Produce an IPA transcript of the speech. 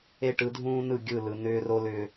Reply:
e˦ ʈ ɯ˨˦ dʱ ũː˦ n ɯ˦˨ ɡʲ ɯ˦˨ l ɯ˨ n ʏː˦ r o˦ l ʏː˦

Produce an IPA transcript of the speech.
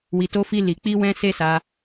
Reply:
w i˧ t o˦ f i˦ l i˧ k͡p i˦ w ɛ̃˦ s e˦ s a˧

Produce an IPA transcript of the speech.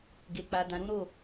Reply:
ɡ e˨ k͡p a˨ d ã˨ ɾ ũ˨˦ ɾ o˦˨

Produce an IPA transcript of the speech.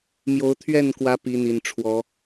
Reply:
m j o˨˦ ʊ̯ t̪ʰ ɥ ɛ˥˨ n k w ä˨˦ p i˨˦ n̪ i˨˩ n ʈ͡ʂʰ w ɔ˨˦

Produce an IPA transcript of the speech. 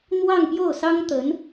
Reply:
n̪ w ɑ˥˧ ŋ p j o˥˩ ʊ̯ s ɑ˥ ŋ t̪ ə˧˥ n

